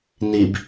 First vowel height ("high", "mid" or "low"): high